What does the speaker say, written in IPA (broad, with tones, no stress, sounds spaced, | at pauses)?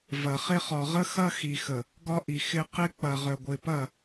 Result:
v ɐ˨ χ ɪ˦ χ ɒ˨ ʁ ə˦ x ɐ˦ x i˨ x ə˨ | ɡ ɒ˦ ʔ i˨ x ɪ˦ q ɪ˦ k͡p ɐ˨ ʁ œ˨ ɡʷ ɪ˨ p ɐ˦˨